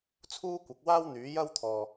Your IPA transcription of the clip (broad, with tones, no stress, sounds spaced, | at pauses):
t͡sʰ uː˥ kʷ ɐ˨˥ k̚ w aː˥ w n̪ yː˨˥ j ɐ˥ w t̪ʰ ɔː˨˩